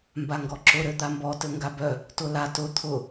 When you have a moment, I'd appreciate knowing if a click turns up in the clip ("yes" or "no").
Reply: yes